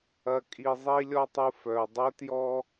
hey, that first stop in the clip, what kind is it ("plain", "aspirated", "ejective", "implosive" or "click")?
ejective